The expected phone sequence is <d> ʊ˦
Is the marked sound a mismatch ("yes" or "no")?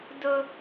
no